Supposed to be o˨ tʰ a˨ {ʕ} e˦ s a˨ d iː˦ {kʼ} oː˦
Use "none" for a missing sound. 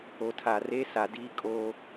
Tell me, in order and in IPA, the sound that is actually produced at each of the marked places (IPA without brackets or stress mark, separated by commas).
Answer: r, kʼ